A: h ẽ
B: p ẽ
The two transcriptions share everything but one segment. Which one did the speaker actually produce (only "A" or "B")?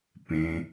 B